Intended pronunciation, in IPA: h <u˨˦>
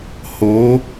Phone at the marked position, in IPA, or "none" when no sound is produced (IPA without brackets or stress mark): o˨˦